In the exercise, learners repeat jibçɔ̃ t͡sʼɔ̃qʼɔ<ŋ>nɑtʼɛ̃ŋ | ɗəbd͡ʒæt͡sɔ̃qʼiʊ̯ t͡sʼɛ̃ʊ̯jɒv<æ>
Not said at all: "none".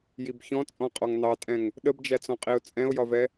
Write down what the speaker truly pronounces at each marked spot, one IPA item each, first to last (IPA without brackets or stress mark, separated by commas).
ŋ, ɛ